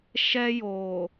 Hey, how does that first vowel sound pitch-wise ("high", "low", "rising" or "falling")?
high